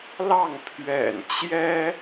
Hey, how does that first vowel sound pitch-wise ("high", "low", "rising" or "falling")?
falling